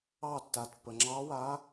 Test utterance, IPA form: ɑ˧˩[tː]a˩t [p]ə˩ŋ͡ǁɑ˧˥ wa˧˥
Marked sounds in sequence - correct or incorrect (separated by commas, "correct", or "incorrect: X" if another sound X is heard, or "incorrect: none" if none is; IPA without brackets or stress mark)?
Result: correct, correct